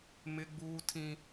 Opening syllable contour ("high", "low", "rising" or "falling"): high